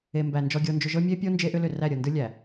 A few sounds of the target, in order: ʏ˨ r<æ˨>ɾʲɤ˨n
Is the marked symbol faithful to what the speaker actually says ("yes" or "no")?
no